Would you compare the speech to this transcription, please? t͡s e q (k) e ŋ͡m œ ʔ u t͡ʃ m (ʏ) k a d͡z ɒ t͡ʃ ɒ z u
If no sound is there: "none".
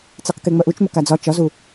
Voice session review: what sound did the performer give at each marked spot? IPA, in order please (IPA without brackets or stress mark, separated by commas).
k, ʏ